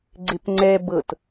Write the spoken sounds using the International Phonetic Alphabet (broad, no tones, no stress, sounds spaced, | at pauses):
ɡ͡ǀ e p ŋ͡ǀ ɛ b ɤ t